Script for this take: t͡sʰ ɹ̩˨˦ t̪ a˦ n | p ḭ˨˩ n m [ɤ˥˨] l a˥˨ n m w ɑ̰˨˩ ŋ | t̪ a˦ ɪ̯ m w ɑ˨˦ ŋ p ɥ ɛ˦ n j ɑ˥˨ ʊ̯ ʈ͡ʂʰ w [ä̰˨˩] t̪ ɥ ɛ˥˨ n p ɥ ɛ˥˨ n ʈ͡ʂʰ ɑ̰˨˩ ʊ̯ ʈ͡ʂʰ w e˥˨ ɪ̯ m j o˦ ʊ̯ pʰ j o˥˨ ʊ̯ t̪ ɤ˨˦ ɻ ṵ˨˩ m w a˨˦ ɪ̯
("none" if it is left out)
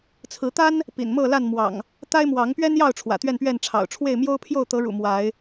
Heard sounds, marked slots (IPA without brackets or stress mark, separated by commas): ɤ˥˨, ä̰˨˩